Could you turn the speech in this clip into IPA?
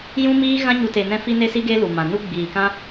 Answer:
j ũ˦ m iː˦ ɣ ã˦ ɲ u˧ t e˧ n ɛ̃˦ f i˦ n e˦ s i˦ ɡ e˦ l u˨ m ã˨ n u˦ ɡ͡b iː˨ k ã˦

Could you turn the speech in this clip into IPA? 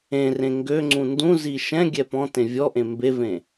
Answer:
ẽ r ẽ ŋ ɡ ø ŋ͡ǀ ũ n d ũ z i ʃ ɛ̃ ɡʲ ɛ p ɔ̃ t ẽ vʲ ɔ ʔ ẽ m b e v ẽ

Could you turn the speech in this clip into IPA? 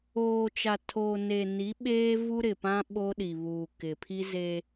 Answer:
oː˨ t͡ʃ a˨ tʰ oː˨ n e˨ n i˨˦ ɓ eː˦ v u˦ ɾ ɪ˨ p ã˦ ɓ o˦ ɗ i˨ β uː˨ k ɪ˨ pʰ i˦ z e˦

